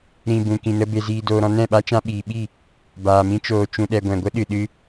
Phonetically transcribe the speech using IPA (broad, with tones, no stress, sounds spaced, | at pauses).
ɾ ĩ˨ b ũ˨ k ĩ˨ n ə˧ b e˨ z iː˨ d oː˨ ɾ ɔ̃˧ n ɛ̃˦˨ ɓ a˦ t͡ʃ ã˧ ɓ iː˨ ɓ i˦˨ | b aː˨ m ĩ˧ t͡ʃ oː˨ t͡ʃ ũ˨ ɗ ɛ˨ ɡʷ ɛ̃˨ ɡʷ ə˦ ɗ ɨ˨ ɗ ɨ˧